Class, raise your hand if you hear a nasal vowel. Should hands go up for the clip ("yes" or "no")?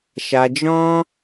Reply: yes